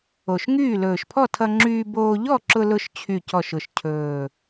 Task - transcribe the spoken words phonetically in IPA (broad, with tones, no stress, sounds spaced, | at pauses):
o˨˩ ʃ ŋ yː˥˨ l ɵː˨˩ ʃ pʰ ɔ˥˨ tʰ ʌ˧ ŋ͡ǁ yː˧ b oː˧ ʎ ɔ˥˨ ǁ ʊ˧ l ʊ˧ ʃ t͡ɕʰ y˨˩ c ɔ˨˩ ʃ ʊ˨˩ ʃ cʰ ɵː˨˩